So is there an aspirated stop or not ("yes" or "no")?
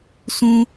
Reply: no